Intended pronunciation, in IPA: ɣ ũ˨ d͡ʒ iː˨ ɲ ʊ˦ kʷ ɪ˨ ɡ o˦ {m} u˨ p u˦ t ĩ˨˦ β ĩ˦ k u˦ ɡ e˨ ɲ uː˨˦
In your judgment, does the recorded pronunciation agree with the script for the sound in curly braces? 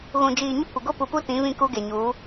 no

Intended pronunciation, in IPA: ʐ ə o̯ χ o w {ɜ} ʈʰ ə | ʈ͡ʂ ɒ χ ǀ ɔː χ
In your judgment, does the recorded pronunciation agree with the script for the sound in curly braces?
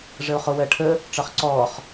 yes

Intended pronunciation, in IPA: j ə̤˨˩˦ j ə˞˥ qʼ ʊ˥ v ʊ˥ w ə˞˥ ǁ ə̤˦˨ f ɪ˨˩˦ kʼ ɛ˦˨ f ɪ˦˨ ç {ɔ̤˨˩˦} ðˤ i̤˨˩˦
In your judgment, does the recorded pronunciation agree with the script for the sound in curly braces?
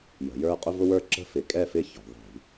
yes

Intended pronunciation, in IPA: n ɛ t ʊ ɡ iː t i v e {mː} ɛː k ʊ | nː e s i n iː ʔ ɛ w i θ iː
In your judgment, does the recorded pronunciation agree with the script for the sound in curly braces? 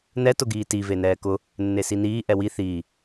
no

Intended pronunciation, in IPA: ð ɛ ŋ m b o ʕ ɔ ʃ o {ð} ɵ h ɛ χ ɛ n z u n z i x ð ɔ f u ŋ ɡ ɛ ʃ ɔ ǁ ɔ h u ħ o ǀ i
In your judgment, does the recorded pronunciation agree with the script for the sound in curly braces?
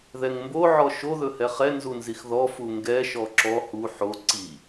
yes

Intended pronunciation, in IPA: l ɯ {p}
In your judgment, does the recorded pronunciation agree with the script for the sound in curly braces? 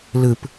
yes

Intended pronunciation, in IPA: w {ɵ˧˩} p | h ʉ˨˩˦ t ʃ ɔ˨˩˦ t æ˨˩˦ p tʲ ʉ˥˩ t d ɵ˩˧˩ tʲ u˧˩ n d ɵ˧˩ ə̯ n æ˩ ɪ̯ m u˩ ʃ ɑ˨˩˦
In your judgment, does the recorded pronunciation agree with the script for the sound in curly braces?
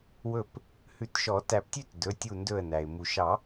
yes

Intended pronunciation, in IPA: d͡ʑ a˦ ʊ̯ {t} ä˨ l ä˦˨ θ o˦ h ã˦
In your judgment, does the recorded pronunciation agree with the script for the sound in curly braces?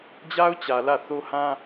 no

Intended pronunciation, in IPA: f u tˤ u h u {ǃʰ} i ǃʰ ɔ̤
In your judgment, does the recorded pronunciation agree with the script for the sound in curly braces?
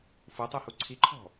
no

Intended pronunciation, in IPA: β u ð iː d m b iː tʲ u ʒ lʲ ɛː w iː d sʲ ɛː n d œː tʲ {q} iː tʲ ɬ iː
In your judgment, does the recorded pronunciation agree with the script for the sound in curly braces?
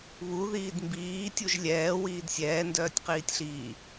yes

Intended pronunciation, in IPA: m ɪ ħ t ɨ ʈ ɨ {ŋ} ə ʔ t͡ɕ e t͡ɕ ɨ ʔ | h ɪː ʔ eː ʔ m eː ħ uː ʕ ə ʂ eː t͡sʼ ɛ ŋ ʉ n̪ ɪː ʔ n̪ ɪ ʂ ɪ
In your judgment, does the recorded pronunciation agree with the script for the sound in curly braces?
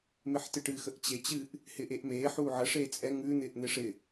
no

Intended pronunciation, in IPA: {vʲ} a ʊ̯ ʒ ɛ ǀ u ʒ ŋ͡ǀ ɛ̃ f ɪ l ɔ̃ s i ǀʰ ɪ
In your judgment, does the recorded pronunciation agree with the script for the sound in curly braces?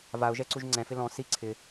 no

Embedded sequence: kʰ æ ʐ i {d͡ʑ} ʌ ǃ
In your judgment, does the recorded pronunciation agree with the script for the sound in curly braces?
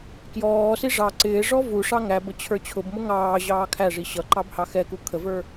no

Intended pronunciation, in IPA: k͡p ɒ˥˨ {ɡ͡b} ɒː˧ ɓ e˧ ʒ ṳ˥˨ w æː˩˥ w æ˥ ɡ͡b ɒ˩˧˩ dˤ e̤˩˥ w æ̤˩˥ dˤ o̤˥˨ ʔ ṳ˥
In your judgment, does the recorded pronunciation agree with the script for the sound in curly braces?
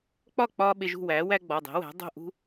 no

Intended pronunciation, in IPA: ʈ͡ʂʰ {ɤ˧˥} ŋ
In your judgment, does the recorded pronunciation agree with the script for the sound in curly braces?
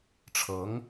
yes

